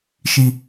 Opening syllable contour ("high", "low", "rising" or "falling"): falling